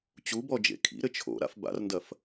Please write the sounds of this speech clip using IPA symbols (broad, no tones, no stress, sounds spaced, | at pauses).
t͡ɕ u b ɔ d͡ʒ ḛ kʰ ḭ ɾ ɘ t͡ʃʰ o̰ ɾ a̰ f b a̰ r n d ɐ f